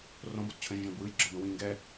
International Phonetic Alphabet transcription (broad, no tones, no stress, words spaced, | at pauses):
rõbott͡ɕʰə̃ʒə̃ʒ ɛ̃bwɯj ɡ͡ǁɯbə̃wĩ ŋɡɛ